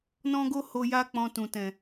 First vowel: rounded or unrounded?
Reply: rounded